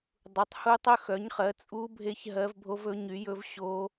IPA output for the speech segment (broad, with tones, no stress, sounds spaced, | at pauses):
dˤ u˨˥ tˤ h u˦˥ tˤ ɵ˦˥ x œ˨˥ ɲ χ ɜ˨˥ t͡sʼ u˦˥ bʱ e˦˥ ç ɦ ɜ˦˥ v bʱ o˦˥ v ɵ˨˥ ɲ y˨˥ j ɵ˦˥ v ɕ o˦˥